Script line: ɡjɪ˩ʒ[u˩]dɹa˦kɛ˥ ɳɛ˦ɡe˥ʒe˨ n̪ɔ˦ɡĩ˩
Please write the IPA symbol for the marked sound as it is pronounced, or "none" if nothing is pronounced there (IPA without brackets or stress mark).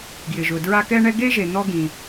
ʊ˩